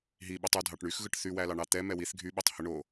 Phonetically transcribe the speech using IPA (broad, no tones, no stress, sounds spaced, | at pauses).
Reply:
ɦ i ɓ u tˤ u dʱ ɑ ʈ ɳ y x ɣ ɯ ʈ θ y w æ l ɑ ɳ ɑ t̪ ɛ m ɛ w i θ ɡʱ y ɓ u tˤ h ɯ ɳ o